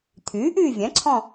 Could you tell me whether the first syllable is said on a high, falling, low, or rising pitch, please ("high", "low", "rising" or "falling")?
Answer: rising